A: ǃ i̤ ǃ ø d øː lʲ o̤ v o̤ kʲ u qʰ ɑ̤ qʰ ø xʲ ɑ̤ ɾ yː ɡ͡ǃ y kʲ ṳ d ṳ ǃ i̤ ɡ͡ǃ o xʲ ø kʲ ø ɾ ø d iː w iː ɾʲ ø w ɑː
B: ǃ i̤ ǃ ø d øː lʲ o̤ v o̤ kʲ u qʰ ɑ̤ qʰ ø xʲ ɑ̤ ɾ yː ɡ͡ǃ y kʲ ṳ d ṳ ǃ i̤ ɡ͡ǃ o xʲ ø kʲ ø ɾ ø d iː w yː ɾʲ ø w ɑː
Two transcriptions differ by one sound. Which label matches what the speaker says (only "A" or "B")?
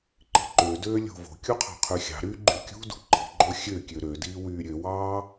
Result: B